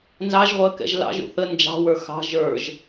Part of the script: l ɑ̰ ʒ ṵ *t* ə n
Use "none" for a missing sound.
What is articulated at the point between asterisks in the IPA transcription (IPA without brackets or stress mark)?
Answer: θ